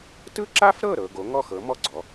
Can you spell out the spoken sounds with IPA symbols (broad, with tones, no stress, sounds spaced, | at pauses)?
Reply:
t ɯ˥ ǁ a˥ f ɾ ɤ˥˩ ɾ ɤ˥˧ ɡ o˩˥ ŋ ɔ˥˩ x ɤ˩˥ m ɔ˥˩ ɡ͡ǀ ɔ˩˥